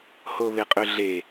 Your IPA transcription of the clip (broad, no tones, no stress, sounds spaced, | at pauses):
h o β e qʼ ʏ ɮ e